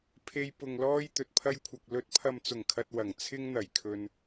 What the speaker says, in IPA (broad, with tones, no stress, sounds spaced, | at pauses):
pʰ e˧ j p ʊ˨ ŋ l ɔː˧ j t̪ ɵ˨ t̚ pʰ ɐ˧ j kʷʰ ɐ˨ k̚ l ɵ˨˥ t̚ pʰ ɐ˨ m t͡s ʊ˨˩ ŋ kʰ ɐ˨ t̚ w ɐ˨˩ ŋ t͡sʰ ɪ˧ ŋ n̪ ɐ˨˩ j kʰ ɵ˨ n